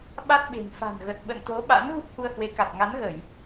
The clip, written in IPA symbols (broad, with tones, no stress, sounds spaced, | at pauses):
ɓ a˦˥ t̚ ɓ e̤˨˩ n f a̤˨˩ n ɣ ə˨˩ t̚ ɓ ə̰˧˨ n t̪ o˨˦ ɓ a̰˧˥ n ɣ u˦˥ p̚ h u˧ ə̯ h w e˨˦ k a˨˩ t̚ ŋ a˨˦ n ɣ ə˧˩˨ j